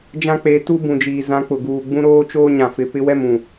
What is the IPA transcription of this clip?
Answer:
d͡ʒ ã˦ k͡p e˨˦ t u˦ b ũ˨ d͡ʒ iː˨ z ã˨˦ k͡p ʊ˨ ɡ uː˨ ɡ͡b ũ˦ ɾ oː˦ t͡ʃ oː˦ ɲ ã˨ f ɪ˨ p ɪ˦ w ɛ˦˨ m ũ˨

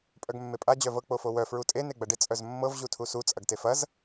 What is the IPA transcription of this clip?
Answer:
pʼ œ ɡ mː e pʼ a d͡ʑ œ v ɤ k͡p o f o w œ f ɹ u tʼ e n e ɡ͡b ɐ ɖ ɪ t͡sʼ œ z mː ɤ v ʑ u tʰ u s u t͡sʼ ɐ ɡ t e f ɐ z

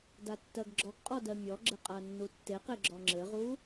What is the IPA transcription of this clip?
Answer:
d a tː ɜ ɡ ɡ͡ǁ ɔ ɡ qʼ ɔ d ɜ mʲ ɔ ɡ͡ǁ ɘ qʼ a nː u tː e q e ɡ͡ǁ ɔ ŋ͡ǁ ɘ ʁ u

